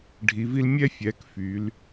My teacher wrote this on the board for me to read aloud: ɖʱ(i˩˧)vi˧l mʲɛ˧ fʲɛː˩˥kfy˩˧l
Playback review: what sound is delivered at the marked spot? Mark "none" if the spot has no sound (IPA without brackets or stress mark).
i˩˧